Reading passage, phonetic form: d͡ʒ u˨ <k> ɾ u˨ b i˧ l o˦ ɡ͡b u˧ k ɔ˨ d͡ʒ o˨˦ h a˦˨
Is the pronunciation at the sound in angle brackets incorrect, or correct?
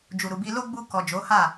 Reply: incorrect